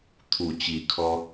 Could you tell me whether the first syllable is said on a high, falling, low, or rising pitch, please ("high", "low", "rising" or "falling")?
low